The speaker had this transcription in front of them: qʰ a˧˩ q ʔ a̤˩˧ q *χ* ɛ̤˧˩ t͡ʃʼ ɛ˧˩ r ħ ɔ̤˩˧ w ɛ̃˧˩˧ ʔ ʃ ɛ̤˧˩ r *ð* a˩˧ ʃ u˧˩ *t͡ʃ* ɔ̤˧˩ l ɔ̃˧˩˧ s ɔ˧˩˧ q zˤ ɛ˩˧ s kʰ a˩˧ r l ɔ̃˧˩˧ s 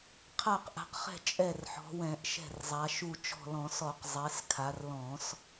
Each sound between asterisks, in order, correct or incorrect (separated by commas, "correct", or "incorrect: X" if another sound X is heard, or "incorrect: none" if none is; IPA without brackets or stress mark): correct, incorrect: zˤ, correct